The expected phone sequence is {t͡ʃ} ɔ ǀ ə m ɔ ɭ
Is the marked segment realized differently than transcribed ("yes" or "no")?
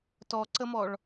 yes